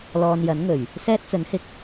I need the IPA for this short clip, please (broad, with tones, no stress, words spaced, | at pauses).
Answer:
lɔː˧njɐ˨˥n ŋɵ˨˩ɥ | sɛː˥t̚t͡sɵ˨˥nhɪ˧k̚